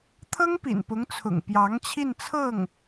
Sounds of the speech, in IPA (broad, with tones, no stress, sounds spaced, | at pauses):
t̪ʰ ɤ˥ ŋ p ḭ˨˩ n p ʊ˧˥ ŋ t͡sʰ ʊ̰˨˩ ŋ p j ɑ˧˥ ŋ t͡ɕʰ i˥˧ n t͡sʰ ɤ˥˩ ŋ